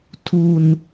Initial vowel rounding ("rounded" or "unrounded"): rounded